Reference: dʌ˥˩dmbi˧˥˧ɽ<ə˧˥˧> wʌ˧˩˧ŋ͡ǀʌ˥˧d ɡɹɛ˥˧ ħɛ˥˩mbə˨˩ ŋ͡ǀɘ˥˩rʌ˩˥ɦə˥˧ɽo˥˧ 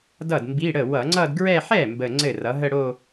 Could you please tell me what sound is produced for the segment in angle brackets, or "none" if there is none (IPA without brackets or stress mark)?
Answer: ə˥˩